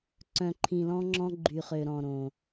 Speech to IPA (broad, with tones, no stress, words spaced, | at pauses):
ǀœ̃˨ǃʰĩ˨lɔ̃˦ŋ͡ǁɔ̃˦ ɡ͡ǃy˨χø˨ɾɔ̃˨ ɾõ˨